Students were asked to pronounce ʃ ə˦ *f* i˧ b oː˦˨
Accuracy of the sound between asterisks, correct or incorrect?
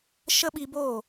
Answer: incorrect: ɓ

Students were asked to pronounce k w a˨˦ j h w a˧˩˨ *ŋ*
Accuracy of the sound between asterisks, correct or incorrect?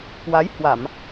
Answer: incorrect: m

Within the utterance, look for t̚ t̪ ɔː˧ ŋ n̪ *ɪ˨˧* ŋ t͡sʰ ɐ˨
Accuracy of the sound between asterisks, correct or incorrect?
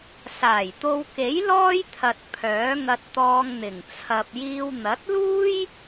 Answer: incorrect: ɪ˨˩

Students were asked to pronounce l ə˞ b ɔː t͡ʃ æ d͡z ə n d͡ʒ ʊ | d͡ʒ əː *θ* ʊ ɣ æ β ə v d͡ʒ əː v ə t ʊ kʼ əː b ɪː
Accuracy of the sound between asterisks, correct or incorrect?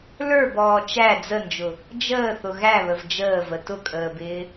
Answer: correct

